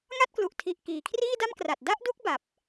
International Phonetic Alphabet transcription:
ŋ a˥˩ t̚ k l u˨˩ ʔ tʰ i˨˩ ʔ k iː˩˦ kʰ r iː˥˩ d a˥˩ m k r a˨˩ t̚ d a˥˩ ʔ d u˦˥ k̚ b a˨˩ p̚

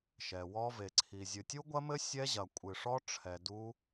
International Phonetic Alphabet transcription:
ʃ ɛ˨ w ɔ˦˥ v e˨ ǀʰ i˨ zʲ ɨ˨ tʲ u˦˥ ɡʷ ɐ˦˥ m ɘ˦˥ sʲ ɛ˦˥ ʑ ɐ˨ kʷʼ ɨ˨ ʂ ɔ˦˥ ʈ͡ʂʰ ɛ˨ d u˦˥

